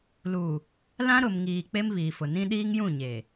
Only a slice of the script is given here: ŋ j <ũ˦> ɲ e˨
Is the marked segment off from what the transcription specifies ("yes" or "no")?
yes